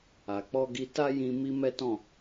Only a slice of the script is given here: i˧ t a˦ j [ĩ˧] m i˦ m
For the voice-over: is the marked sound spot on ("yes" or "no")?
yes